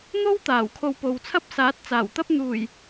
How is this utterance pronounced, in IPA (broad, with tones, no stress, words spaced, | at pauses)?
n̪o˥w t̪aː˨˩wkʰo˧wpo˨w t͡sʰɐ˥p̚saː˨˥t̚ t͡saː˨˩wt̪ɐ˥p̚ n̪uː˨˩j